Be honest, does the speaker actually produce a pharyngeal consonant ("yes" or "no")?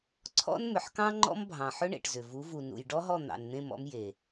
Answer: yes